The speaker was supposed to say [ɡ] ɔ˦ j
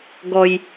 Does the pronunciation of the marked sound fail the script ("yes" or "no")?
no